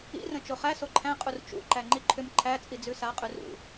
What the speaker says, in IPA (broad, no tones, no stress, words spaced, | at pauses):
ḭrə̃ t͡ʃoχæ soǃʰæ̃ qʼurt͡ʃṵ ǃæŋ͡ǃiǃʰʏm ǃʰæt͡sʼid͡zʉ saqʼʉr ṵ